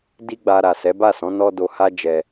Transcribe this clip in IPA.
di˦ɡ͡ba˧ ɾa˨sɛ˨˦ba˦˨sɔ̃˨˦ nɔ˦do˧ha˦d͡ʒɛ˧

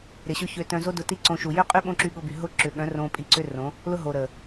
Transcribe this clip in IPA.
ɾɪ˨ɕʊ˦çø˧ tœ̃˧zo˦dʊ˧ ti˦ǀõ˧ʃu˨ jʏ˦qʼy˦ ɓõ˦ǁy˧ɠʊ˧by˨ ɦʊ˦˨ ǁʏ˨ɠœ̃˨˦ rõ˧pʼi˧ǀʏ˦ rõ˨˦ | lʊ˦ɦo˨ɾə˨

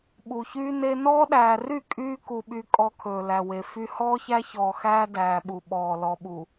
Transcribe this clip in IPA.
ɓu˨çyː˦ne˦ nɔː˦ɗæː˨ry˦˨ kʼyː˦ ku˨ ɓy˦kʼɔ˦ kʰɵː˨læ˨ we˨fy˦ hɔː˦çæ˦çɔː˨ xæː˦dæː˨ɓu˨ ɓɔː˨ lɔ˨ɓu˨

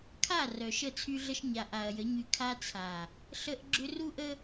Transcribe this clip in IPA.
kʰa˦˨ rœ˨ʃə˦˨t͡sʰy˦ɮə˦ʃ ɲa˨ʔa˨ɐ̯jə˨˦ɲy˨ kʰa˦t͡sʰa˨ | ɬə˦ʔɡ͡ǁʏ˦ ru˦ʔə˦

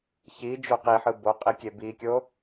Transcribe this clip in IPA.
çi d͡ʒoqiħɯ boqʼi kʲebikʲo

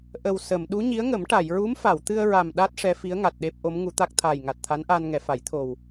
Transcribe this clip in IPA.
ʔə˨˩w sə˨˩˨m ɗu˧˥ɲi˧˥ə̯ŋə˨˩˦m ʈa˨˩˨jɹu˧˥mfa˨˩˨wt̪ɨ˧ə̯ ɹa˨˩mɗa˦˥t̚ ʂɛ˧˥fi˧˥ə̯ŋa˨˩t̚ ɗe˦˥p̚ʔo˧˥m ŋu˧˥t̪a˦˥k̚ t̪ʰaː˨˩jŋa˨˩t̚t̪ʰa˧˥nʔaː˧n ŋɛ˨˩˨fa˨˩˦j t̪ʰo˨˩w

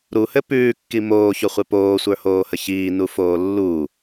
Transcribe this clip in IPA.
ɾuhɘ pʉːkːi moːçoχʷe poːsʷə˞hoːhə çiːnufoː lːu

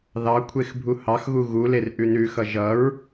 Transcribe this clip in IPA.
ðɑkʷʰex bʱuhɑxɣu ɣuler ʔʉnʉxʌ ʒʌɹ

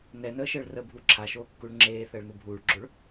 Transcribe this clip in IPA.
nɛnəːʃəːɭ rəbʱu ǁʰaʃoːkːuɭ ŋ͡ǁeːθəːɭnu bʱuːɭɡ͡ǁoɭ

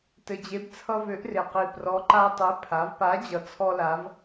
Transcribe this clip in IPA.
tɘ˨˩d͡ʑe˨˥b t͡sʰʌ˦vø˨˥ʔre˨˩qi˨˩ prɔ˨˥ǃa˦ tˤø˨˥ pʰa˩˧vpa˨˥ d͡ʑʌ˨˥t͡sʰɔ˦la˨˥v

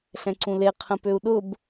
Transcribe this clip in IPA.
ɬɛ̃ǀũle qʰə̃pøu̯ɗʊb

